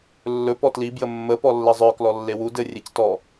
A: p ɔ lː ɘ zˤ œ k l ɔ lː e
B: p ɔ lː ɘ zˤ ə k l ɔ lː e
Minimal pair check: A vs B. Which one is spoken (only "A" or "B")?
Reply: A